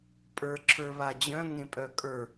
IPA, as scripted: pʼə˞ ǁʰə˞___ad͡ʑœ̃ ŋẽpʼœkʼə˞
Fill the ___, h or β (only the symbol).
β